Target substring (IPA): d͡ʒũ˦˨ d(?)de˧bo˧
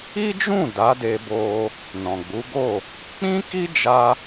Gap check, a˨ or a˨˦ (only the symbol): a˨˦